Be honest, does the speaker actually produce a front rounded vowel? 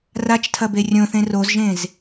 no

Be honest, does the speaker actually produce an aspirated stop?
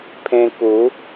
yes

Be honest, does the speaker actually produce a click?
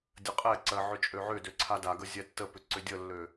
yes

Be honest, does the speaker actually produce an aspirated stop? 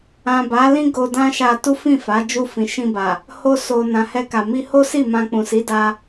no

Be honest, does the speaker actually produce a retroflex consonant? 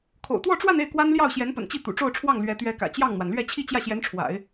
yes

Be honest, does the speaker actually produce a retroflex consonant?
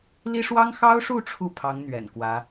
yes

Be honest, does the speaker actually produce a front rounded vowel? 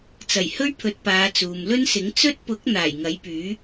yes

